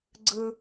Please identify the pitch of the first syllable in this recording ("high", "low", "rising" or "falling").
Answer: high